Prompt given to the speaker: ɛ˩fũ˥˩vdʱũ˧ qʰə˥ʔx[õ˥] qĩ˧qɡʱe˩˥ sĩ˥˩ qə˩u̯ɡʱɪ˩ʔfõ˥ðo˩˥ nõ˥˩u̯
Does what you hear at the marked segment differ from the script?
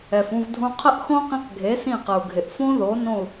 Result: no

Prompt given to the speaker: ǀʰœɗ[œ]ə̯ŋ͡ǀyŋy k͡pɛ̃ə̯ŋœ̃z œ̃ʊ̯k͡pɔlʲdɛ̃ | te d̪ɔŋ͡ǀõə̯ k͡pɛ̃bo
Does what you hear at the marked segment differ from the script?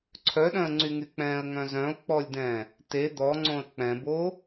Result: yes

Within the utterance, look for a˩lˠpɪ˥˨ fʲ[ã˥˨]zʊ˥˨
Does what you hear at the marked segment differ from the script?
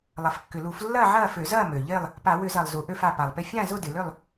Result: no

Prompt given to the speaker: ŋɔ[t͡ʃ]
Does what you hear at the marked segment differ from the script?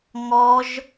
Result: yes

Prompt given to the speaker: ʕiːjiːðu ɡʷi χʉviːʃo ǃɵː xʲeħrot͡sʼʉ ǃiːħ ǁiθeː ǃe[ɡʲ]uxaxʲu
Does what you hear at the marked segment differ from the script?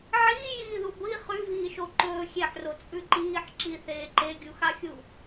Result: no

